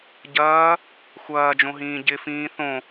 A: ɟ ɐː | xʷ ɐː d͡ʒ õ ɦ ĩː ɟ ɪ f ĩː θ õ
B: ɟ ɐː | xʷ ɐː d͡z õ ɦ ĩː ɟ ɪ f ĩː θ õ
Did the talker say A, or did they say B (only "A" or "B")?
A